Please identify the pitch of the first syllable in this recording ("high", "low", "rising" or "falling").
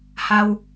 high